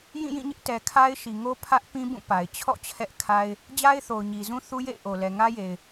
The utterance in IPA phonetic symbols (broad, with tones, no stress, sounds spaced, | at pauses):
j ĩ˦˨ j ĩ˦˨ ɲ ɪ˦ ʔ t ɛ˨ kʰ a˦ ɪ̯ ʃ i˨ ŋ o˦ pʰ ä˦ ʔ p ĩ˦ b ũ˦˨ p a˨ ɪ̯ t͡ɕʰ ɔ̰˦˨ t͡ɕʰ ɛ˦ ʔ kʰ a˦ ɪ̯ | d͡ʑ a˦ ɪ̯ θ o˨ ʊ̯ ɲ i˨ z ũ˦ θ u˦ j ḛ˦˨ ɪ̯ ʔ o˨ l ɛ˨ ŋ ä˦ j e˨ ɪ̯